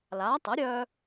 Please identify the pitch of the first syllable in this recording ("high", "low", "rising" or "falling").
rising